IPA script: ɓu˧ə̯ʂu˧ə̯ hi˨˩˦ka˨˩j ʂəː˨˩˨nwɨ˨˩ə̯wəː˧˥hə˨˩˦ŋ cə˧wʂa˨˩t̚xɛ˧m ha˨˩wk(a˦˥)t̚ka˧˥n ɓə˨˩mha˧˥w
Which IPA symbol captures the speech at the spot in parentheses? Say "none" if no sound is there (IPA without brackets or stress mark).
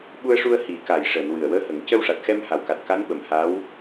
a˨˩